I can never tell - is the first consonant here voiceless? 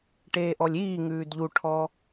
yes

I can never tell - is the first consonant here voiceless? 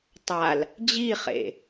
yes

